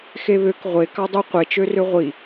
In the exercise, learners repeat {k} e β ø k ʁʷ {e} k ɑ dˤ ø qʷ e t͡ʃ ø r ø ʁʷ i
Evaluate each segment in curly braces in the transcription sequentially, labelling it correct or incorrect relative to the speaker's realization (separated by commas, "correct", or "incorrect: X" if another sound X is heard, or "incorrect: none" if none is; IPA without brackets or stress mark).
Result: incorrect: x, correct